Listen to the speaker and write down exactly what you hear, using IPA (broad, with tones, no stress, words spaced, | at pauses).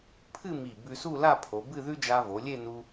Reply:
pʰɨ˥˧ mi˧˩bʉ˧su˥˧la˥˧ pʰo˩˧bɨ˥˧ðʉ˥ d͡ʒa˧vo˩˧ lʲe˥˧ nu˧